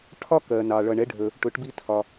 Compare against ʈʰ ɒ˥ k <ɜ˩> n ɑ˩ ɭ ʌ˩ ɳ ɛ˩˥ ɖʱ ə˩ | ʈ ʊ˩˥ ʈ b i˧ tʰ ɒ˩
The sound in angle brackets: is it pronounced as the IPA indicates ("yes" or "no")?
yes